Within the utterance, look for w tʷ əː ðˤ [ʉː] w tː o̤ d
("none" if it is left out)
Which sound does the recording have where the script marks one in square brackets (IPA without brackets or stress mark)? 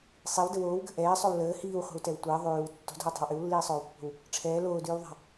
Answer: ʉː